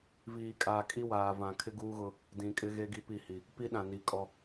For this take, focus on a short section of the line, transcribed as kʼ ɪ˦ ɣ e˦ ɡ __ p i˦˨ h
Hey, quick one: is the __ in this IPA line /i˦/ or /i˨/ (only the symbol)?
i˦